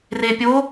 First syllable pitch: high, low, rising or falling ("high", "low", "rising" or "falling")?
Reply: low